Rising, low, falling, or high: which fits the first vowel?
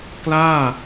falling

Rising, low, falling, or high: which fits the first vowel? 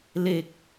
low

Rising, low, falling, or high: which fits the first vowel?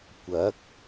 rising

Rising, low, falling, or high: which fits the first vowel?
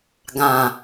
low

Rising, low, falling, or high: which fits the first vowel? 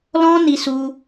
high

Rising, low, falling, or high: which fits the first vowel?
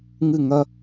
falling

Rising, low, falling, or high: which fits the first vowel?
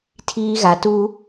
high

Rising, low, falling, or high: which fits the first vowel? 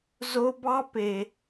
high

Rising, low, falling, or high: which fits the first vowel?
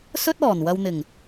high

